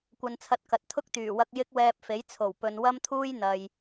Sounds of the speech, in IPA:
kʷɐ˨nt͡sʰɐ˨˥t̚ kɐ˨t̚ t̪ʰʊ˥k̚ t̪yː˨˩wɐ˧k̚ jɪ˥k̚wɛː˧p̚fe˨˥jt͡sʰo˨˩w pɵ˨nwɐ˥mt̪ʰuː˥j n̪ɐ˨j

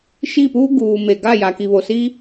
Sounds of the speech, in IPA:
ʃi˦˨puː˦ ɡuː˨me˨ ɡa˦˨ja˨ki˨ βo˨si˦

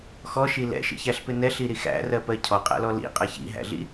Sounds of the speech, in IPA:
xɔʃi lɛ̰ʃḭçæɬpɪ nɛɬiɾi xæ̰rɜpɜ cʰɔqʼæ̰lɔ lḭqʼɜç ḭɦæ̰ɮḭ

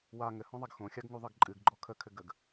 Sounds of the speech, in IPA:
wa ŋɘhɔ̃ðˤaɡ xõxʲaɡŋuðˤɘɡ ǃʼɨɡɡ͡ǃɔ kʰəkʰɘɡəɡ

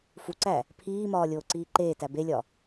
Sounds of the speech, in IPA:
fuǀæ | pʰiːmɒː lʲoːǀiːǃeːtæ belʲɒ

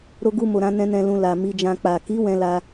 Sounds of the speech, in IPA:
ɾo˧ɡu˧mo˨ɾã˧ nɛ̃˧nɛ̃˧ lũ˧ la˨ mi˧d͡ʒã˧ k͡pa˨ki˨˦ wɛ̃˧la˧

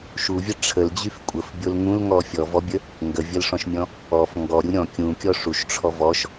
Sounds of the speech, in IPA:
ʃuvʲə ʈ͡ʂʰəld͡ʑyf kʷʼəfbʲol ŋũlŋɔ fʲɔvɔbʲə | ŋɡəvʲəlʂɔ̃ʃmʲɔ̃ | ɔf ŋɡɔɾʲu ɾʲɔ̃ kʲũkʲɔ ʂuʃʈ͡ʂʰɔ vɔʃ

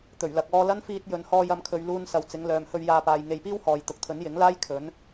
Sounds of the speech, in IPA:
t̪ɵ˨˩ɥlɐ˨k̚ ɔː˧lɐ˥nfiː˧t̚ jɵ˨nhɔː˧jɐ˨˧mkʰɵ˨ɥ luː˧nsɐ˨w t͡sɪ˨˧ŋlœː˨mhɵ˧ɥ jaː˧paː˨j ŋe˨jpiː˥w hɔː˨jt̪ʊ˨˥k̚t̪ʰɵ˨˥n jɪ˨˥ŋ laː˥j kʰɵ˨˥n

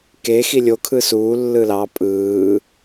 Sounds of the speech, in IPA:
ke xilʲo kʰɯsuː lːɯlɑ pʼɯː

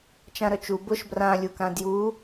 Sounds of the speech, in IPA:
t͡ʃãɾœt͡ʃu bʊʃ brãlʲukã dju

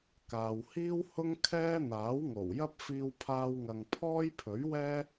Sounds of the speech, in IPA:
kaː˨whiː˥whʊ˥ŋ kʰɛː˥n̪aː˨˥w ŋo˨˩wjɐ˥p̚ fiː˧wpʰaː˧wŋɐ˨ŋ pʰɔː˥jpʰɵ˨˥ɥwɛː˥

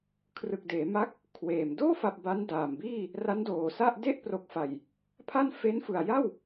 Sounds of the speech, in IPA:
kʰrɯ˨˩k̚deː˩˦ ma˦˥k̚ | kʰweː˨˩m doː˥˩fa˨˩p̚ ba˦˥ndaː˨˩mbiː˥˩ | ra˦˥ndoː˨˩sa˥˩ʔ de˥˩ʔpro˨˩k̚fa˨˩j | pʰa˥˩n fe˦˥nfɯ˨˩a̯ja˥˩w

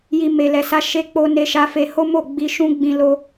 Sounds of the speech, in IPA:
ji˧me˨ lɛ˨sa˧ ʃe˦k͡po˦ ne˧ʃa˧ fe˧ho˦mo˦˨ ɡ͡bi˧ʃũ˦ɡ͡bĩ˧ lo˧

